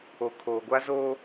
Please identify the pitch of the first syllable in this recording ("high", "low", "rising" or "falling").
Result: low